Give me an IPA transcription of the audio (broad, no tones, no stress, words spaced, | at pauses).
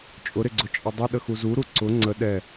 t͡ʃʼʊɾɪɡ͡ǀʊ t͡ʃʼɪdˤɪɗə xuzuɾu ǀʊ ŋ͡ǀə ɗɛ